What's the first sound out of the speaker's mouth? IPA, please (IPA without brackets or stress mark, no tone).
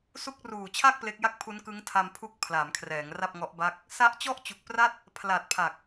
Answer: s